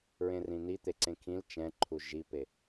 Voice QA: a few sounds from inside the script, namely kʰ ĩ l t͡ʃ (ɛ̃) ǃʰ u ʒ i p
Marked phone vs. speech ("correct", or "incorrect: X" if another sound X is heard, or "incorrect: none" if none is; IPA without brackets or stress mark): correct